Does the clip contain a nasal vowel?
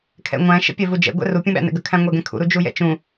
yes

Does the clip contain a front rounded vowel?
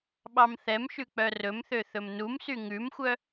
yes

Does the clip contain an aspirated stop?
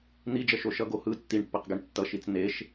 no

